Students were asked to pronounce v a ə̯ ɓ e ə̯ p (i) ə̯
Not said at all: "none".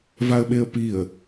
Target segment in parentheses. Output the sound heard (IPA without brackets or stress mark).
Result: i